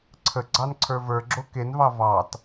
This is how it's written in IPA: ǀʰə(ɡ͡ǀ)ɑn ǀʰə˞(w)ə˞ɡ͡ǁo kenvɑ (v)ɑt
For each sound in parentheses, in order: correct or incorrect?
correct, incorrect, correct

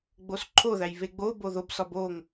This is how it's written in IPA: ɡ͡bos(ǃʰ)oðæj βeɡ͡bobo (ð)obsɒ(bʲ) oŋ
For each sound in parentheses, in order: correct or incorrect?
correct, correct, incorrect

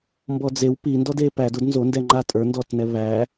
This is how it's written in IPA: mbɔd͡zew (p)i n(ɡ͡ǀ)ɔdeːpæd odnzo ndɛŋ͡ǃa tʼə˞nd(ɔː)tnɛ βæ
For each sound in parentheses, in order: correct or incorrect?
correct, incorrect, correct

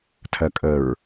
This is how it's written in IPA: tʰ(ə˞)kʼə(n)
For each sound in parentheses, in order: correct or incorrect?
incorrect, incorrect

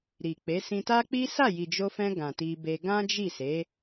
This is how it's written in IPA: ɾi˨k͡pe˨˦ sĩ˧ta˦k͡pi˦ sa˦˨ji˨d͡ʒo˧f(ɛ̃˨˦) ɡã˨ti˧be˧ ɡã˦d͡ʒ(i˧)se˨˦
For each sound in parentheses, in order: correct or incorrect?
incorrect, incorrect

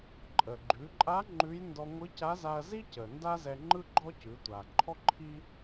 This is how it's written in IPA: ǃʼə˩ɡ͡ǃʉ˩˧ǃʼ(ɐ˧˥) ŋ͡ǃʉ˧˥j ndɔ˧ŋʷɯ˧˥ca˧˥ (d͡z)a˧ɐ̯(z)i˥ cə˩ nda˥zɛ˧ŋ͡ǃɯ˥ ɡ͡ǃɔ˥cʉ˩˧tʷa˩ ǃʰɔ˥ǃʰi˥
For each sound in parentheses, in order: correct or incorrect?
incorrect, incorrect, correct

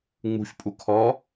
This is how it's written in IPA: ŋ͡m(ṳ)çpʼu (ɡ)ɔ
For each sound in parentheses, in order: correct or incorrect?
correct, incorrect

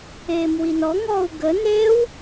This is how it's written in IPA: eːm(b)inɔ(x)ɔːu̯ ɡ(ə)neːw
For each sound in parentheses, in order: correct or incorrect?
incorrect, incorrect, correct

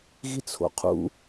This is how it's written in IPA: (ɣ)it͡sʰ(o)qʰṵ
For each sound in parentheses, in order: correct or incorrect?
correct, incorrect

